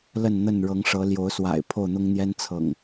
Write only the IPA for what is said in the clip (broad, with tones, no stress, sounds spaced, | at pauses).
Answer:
l ə˥˨ n n̪ ə˥˨ n ɻ ɤ˨˦ ŋ ʂ ɤ˨˦ l j o˨˦ ʊ̯ s w a̰˨˩ ɪ̯ pʰ o˥˨ ʊ̯ n̪ ʊ˦ ŋ n̪ j ɛ˦ n t͡sʰ ɤ̰˨˩ ŋ